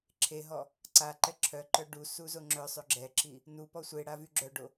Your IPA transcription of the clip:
ǁʰ e ɦ ɔ | ǀ a ǃ ɛ ǁʰ œ ǃ œ ɖ u s u z o ŋ͡ǁ œ sˤ ø ɡ͡ǁ ɛ ǁ i | n u p ɔ sʷ e ɽ a v y ɡ͡ǁ œ ɖ o

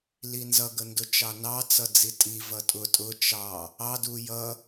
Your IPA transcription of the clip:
l i n z ʌ ɡ ə n d ʊ t͡ʃ ɑ n ɑ t͡s ʌ d͡z i tʼ i v ʌ tʼ ʊ tʼ ʊ t͡ʃ ɑ | ɑ d u j ʌ

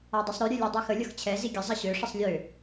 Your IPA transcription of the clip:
a dˤ ɛ sˤ ɾ ø ɾʲ ø lʲ ɛ dˤ i x ə lʲ ʌ x t͡ɕʰ ɛ z i ɡʲ ə zˤ ʌ ɕ ø ʂ ə sˤ lʲ ø

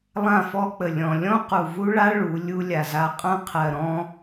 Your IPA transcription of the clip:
lˠ ã˦˨ f ɔ˦ k͡p ə˨ lʲ ɔ̃˨ lʲ ɔ̃˦ q u˨ v u˦ ɭ a˦ ɭ u˨˦ lʲ u˦ lʲ a˨ z a˦ qʼ ã˦ qʰ ɜ˨ ɾ ɔ̃˦

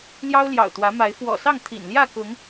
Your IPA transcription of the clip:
l j ɑ˦ ʊ̯ l j ɑ̰˨˩ ʊ̯ t̪ w ä˨˦ m a˨˦ ɪ̯ f w ɔ̰˨˩ s ɑ˥˨ ŋ t̪ʰ ḭ˨˩ n l j ä˥˨ k ʊ˨˦ ŋ

